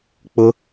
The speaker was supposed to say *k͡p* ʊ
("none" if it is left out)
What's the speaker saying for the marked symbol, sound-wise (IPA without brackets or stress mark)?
k͡p